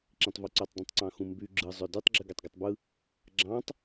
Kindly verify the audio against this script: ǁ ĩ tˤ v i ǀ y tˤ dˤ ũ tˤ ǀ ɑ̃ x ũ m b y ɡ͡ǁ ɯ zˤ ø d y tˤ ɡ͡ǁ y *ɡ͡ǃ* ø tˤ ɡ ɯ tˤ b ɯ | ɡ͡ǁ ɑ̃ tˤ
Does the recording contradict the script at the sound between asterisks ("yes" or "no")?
yes